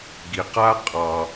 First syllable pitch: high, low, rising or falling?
low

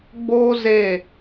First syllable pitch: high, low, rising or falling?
high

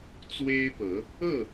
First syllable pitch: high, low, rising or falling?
high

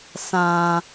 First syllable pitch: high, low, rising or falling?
low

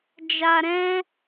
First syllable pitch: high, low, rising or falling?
low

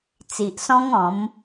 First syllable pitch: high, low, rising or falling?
low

